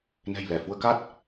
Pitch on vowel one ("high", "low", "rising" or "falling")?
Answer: low